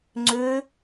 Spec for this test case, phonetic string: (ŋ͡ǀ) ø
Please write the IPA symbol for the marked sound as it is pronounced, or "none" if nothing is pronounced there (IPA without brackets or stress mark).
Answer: ŋ͡ǀ